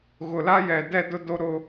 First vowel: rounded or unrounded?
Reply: rounded